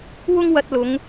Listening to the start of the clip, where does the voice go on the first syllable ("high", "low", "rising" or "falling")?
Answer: high